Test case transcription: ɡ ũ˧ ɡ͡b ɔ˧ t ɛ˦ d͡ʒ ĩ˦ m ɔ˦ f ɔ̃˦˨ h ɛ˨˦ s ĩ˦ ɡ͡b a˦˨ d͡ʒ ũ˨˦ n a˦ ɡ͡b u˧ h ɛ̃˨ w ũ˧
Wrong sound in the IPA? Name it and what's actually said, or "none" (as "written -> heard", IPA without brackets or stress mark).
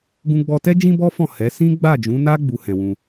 m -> b